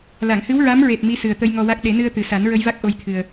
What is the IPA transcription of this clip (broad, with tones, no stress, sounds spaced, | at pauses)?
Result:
l a˨˩˨ ŋ h ɨ˧˥ w ɹ a˧˥ m ɹ e˨˩ t̚ m i˧˥ s ɨ˨˩ ə̯ t̪ ə˧ j ŋ ɔ˧ w a˦˥ k̚ ɗ e˨˩˦ n ɨ˧ ə̯ t̪ ɨ˨˩ s a˨˩˦ n ɹ ə˧ j v a˦˥ k̚ ʔ o˧ j t̪ʰ ɨ˨˩ ə̯